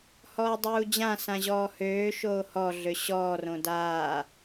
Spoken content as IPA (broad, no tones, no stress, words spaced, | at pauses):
hɔːdˤuːd͡ʑãsã ʑɔːhøːʃoː hɔɮø ɕɔːrõ daː